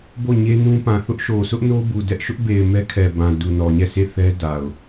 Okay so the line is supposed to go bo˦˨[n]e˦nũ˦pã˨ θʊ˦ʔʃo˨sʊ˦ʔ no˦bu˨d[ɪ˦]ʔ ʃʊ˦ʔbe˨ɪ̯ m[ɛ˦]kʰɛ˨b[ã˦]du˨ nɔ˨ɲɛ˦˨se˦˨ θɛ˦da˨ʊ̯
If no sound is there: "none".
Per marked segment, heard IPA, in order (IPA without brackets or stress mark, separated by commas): ɲ, ɛ˦, ɛ˦, ã˨